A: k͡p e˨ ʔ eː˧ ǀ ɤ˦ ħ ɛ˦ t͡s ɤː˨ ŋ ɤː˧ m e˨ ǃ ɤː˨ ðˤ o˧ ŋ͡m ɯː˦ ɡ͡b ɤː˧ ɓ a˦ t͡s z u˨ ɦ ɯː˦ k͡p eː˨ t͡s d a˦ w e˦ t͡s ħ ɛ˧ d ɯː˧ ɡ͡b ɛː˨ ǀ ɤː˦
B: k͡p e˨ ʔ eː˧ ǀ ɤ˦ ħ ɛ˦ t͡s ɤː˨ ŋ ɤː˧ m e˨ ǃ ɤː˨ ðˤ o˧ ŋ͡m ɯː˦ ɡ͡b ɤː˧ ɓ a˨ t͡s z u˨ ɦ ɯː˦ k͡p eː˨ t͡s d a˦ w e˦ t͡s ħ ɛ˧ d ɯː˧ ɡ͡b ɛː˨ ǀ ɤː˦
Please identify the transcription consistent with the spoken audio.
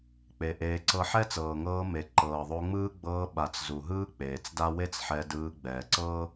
B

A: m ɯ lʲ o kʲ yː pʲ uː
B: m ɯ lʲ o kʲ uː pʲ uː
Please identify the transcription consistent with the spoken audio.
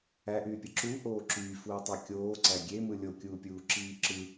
B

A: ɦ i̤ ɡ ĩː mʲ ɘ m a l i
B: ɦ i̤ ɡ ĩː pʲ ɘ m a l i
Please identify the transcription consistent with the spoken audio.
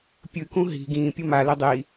B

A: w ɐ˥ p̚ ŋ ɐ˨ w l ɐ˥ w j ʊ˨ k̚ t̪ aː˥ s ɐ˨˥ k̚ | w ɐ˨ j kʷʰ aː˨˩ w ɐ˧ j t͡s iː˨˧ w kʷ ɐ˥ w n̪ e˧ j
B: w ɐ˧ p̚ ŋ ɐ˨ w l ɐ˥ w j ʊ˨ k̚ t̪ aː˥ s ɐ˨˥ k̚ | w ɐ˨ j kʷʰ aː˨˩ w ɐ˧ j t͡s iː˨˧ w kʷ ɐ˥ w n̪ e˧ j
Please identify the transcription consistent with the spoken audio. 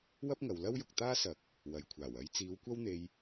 A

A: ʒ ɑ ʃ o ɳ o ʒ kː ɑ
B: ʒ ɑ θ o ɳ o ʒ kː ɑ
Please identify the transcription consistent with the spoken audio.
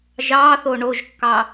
B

